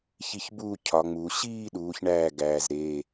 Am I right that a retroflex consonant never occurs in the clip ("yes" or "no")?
no